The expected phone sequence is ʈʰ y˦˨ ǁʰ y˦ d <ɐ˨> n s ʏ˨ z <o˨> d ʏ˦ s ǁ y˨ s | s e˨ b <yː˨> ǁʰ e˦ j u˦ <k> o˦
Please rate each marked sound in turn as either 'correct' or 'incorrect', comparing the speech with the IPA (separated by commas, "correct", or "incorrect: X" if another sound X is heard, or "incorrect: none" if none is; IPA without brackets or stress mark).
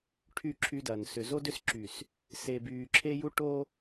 correct, incorrect: o˦, correct, incorrect: ʈ